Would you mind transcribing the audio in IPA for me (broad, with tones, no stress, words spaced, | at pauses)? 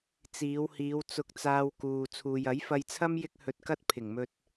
t͡siː˨˧whiː˨˧w t͡sʊ˧k̚t͡saː˧wkuː˨ t͡sʰuː˨jɐ˨˥jfɐ˧jt͡sʰɐ˥m jɪ˥k̚hɵ˧t̚kɐ˥t̚ pʰɪ˨˩ŋmɵ˧t̚